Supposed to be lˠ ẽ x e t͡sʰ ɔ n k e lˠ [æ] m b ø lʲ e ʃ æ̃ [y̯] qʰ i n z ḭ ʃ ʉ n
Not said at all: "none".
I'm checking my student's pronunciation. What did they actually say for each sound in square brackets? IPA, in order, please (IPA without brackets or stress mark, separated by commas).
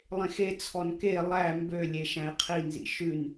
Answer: æ, i̯